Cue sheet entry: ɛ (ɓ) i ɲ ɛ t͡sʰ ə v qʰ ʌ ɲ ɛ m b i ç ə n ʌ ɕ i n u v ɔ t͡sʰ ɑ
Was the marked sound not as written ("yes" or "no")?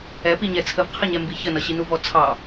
yes